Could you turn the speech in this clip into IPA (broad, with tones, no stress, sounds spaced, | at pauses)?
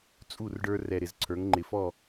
t͡sʼ u˦˨ r ɖ ə˞˦ r ɛ˨ ɾ ɪ˨ z ǀʰ ə˞˨˦ ŋ ŋ͡ǃ ɪ˨ f ɔ˦˨